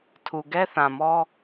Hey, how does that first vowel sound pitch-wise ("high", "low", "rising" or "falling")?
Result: low